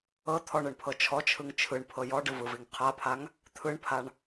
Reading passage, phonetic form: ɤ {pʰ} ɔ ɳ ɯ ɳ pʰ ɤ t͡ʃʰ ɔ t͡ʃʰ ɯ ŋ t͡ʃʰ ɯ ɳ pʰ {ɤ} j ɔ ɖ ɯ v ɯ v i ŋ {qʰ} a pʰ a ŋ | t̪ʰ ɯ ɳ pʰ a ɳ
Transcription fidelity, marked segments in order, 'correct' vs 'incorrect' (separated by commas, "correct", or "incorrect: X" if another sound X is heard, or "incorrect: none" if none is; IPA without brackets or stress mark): incorrect: t̪ʰ, correct, correct